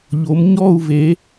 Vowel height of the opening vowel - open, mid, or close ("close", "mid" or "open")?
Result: mid